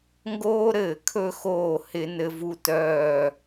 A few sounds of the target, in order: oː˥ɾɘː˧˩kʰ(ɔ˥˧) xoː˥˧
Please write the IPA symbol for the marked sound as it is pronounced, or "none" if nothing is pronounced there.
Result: ɵ˥˧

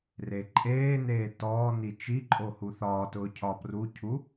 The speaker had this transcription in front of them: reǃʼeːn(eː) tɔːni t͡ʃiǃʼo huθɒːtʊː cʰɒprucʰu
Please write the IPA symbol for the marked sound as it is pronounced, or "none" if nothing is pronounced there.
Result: eː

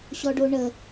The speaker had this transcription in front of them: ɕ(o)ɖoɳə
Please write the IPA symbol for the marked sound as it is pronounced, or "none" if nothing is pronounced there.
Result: ɔ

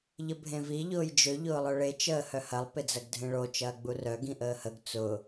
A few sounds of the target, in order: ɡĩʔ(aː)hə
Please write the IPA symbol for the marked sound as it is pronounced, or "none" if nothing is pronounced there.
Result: əː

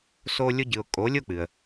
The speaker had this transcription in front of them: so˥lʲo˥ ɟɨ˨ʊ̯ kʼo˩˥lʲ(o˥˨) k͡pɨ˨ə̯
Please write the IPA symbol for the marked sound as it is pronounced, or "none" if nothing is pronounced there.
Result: o˥˨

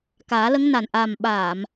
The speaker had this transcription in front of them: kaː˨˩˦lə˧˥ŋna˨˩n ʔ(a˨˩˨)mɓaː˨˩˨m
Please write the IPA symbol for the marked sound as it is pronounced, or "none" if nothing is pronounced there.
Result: a˨˩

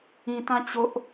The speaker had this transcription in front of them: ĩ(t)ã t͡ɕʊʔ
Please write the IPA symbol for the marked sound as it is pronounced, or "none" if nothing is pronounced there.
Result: t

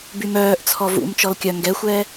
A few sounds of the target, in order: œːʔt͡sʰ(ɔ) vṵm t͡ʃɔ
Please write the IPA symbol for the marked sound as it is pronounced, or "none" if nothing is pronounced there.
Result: ɔ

